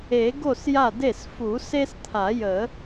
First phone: e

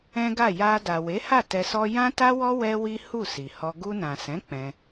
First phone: ɛ̃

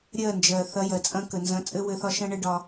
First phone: ɾʲ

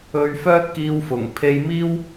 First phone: ɵ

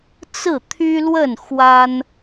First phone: t͡s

